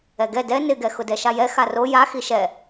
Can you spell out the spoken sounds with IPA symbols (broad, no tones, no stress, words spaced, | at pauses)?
ɛɡɛ dɛ nɪɡɛ xʊdɛʃajɛ xaro ja xiʃɛ